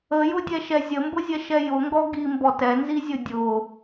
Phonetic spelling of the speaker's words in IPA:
ə j ʊ dʲ ɛ ʃ ɛ zʲ ə m b ʊ zʲ ɛ ʃ ɛ j ʊ ŋ ɡ ɔ ɡ i m b ɔ t ɛ n z i zʲ ʊ dʲ ʊ

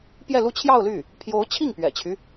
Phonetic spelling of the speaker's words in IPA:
p j ɛ˥˧ l u˥˧ t͡ɕʰ j ɑ˥˧ ʊ̯ l y˥˩ | pʰ j o˧˥ ʊ̯ t͡ɕʰ i˥˩ ŋ p ɥ ɛ̰˨˩ t͡ɕʰ y˦

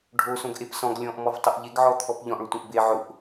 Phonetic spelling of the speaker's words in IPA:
ɖʱ o s õ ɡ ʔ e p s ɔ̃ ɡ lʲ ɔ̃ ʔ m ɔ v tˤ ʊ ʔ ʎ e ɡ ʕ ɔ t̪ʰ ɔ p ʎ ɔ̃ ʔ ɭ ʊ tʷ ẽ ʔ b e ʕ ʊ ʔ

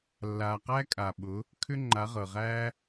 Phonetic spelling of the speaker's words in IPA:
lː aː˨ q æ˦ kʼ a˨ ɓ ʊ˨˦ | kʰ ʏ˦ ŋ͡ǃ a˨˦ ʁ ɤ˨ ʁ æː˦

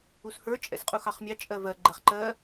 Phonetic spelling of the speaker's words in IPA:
u s h ə˞ t͡ʃʼ ɛ̰ s qʼ u x ɑ χ mʲ ɑ t͡ʃʼ ɜ v ɜ ɡ͡ǃ ɛ χ ǃ ɜ

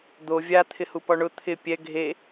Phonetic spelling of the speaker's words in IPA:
d̪ o vʲ a t̪ʰ ɪ h u p ɔ ɳ ʊ t̪ʰ ɪ pʲ ɛ ɡʱ e

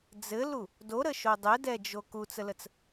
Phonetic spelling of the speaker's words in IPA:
d͡z ɘ l u | d o ɾ ə ʃ o dˤ ɘ d ɛ d͡ʒ o k u t͡s ə l ə t͡s

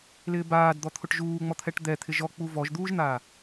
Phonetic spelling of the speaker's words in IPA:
l ɪː b aː d d̪ ɔ t̪ʰ ʊ ʈ ʒ uː ŋ͡m ɔ t̪ʰ ɛ ʈ d̪ ɛ t̪ʰ ɪ ʒ ɔ k͡p u v ɔ ʒ d̪ uː ʒ n̪ aː

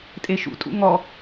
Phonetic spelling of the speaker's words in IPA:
tʼ e ʃ ṵ tʼ ṵ ŋ ɔ

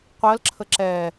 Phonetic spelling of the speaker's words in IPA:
qʷ ɜ l ǁʰ ə ǁ ɛ

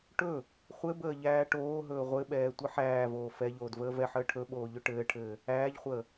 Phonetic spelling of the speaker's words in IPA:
ʈ ɵ | χʷ ɘ b əː ʎ æː ʈ oː ɦ ɵː ʁʷ ɘ ɓ ɛː tʷ ɘ ħ æː v oː f ɛ ʎ oː d v əː v ɛ ħ əː ʈʰ ɵ ɓ oː ʎ ɵ ʈ ɘː ʈʰ ɘː | æː ʎ χʷ əː

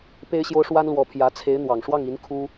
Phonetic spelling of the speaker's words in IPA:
p e˥ ɪ̯ ɕ j o˥ ʊ̯ ʂ w a˥ n l w ɔ˧˥ pʰ j ä˧˥ t͡sʰ e˧˥ ɪ̯ n̪ w ɑ˨˩ ŋ ʂ w ɑ˥˩ ŋ i˧˥ n kʰ u˥

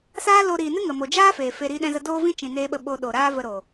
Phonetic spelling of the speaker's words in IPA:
s aː˦ l o˧ ɾ iː˨ n ɨ˦ ŋ ə˨ m o˨ d͡ʒ aː˦ f eː˨ f e˧ ɾ iː˧ ɗ ɛ̃˧ z ə˧ d oː˦ v ĩ˦ t͡ʃ ĩ˨ n eː˧ ɓ ə˧ ɓ o˧ ɗ o˨ ɾ aː˦ v ə˧ ɾ o˨

